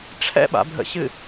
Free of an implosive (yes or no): no